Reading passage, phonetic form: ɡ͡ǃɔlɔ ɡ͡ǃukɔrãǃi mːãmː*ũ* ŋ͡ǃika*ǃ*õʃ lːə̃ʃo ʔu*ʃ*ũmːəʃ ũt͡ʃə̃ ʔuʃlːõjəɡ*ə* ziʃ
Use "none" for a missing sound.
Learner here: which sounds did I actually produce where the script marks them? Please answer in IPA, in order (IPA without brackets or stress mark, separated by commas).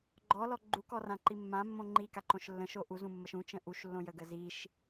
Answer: õ, ǃ, z, ə